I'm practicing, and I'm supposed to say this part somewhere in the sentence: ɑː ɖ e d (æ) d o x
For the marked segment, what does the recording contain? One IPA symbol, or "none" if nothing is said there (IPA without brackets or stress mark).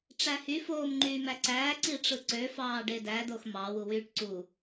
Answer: æ